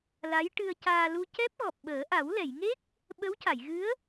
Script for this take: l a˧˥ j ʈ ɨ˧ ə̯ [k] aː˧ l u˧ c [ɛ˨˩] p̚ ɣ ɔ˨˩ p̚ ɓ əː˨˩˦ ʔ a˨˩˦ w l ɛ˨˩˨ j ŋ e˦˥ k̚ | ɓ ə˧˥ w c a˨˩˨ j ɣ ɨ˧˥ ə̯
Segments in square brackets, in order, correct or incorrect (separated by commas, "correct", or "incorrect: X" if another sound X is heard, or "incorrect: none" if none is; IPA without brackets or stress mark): incorrect: c, incorrect: ɛ˦˥